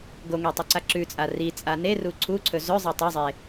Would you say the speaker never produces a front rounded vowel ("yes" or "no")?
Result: yes